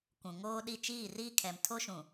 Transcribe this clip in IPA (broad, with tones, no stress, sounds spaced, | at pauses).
kʷ ũ˨ ŋ oː˦ ɗ i˦˨ t͡ʃ iː˦˨ r iː˦ kʰ ɛ˨ m tʰ o˦ ʃ ũ˨